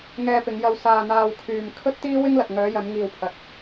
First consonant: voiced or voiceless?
voiced